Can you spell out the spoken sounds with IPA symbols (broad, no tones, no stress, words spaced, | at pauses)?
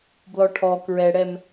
blɔʈʰɔ kɹɛɽɛm